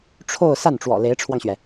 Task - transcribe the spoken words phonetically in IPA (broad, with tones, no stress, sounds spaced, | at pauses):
ʈ͡ʂʰ o˥˧ ʊ̯ s a˥˩ n ʈ͡ʂ w ɔ̰˨˩ l e˧˥ ɪ̯ ʈ͡ʂʰ w ɑ˧ ŋ ɕ ɥ ɛ˩